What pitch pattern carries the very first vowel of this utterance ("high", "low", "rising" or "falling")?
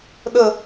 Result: falling